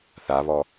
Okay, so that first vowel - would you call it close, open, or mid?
open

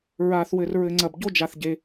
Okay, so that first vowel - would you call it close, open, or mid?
open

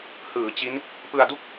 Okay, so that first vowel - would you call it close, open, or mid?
close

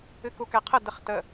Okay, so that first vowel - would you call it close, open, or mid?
close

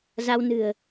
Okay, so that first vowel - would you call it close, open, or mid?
open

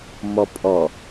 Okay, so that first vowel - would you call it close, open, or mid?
mid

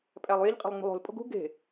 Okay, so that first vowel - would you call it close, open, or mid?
open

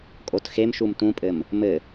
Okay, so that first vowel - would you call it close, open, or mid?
mid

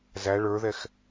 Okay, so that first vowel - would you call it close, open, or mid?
open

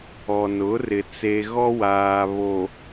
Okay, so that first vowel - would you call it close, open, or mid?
mid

